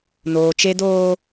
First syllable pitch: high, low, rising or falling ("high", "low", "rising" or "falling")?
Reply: low